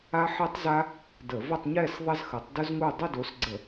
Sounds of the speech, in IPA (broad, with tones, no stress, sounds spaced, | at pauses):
a˥ ħ e˥ tˤ z a˥ | d ə˧˩˧ v ə˥˧ tˤ ɲ ɛ˥˧ s ðˤ ɐ˥ z x ə˨˥ tˤ d ʊ˥ z ŋ u˥˧ dˤ ʊ˥˧ d o˨˥ s ɡ͡ǀ ə˧˩˧